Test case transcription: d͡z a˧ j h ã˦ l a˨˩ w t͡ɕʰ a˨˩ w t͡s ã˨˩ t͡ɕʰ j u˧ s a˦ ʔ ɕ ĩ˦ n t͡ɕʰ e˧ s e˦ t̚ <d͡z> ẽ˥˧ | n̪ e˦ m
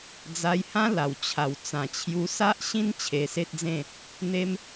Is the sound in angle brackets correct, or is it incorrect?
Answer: correct